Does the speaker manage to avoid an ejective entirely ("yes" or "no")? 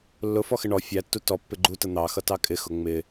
no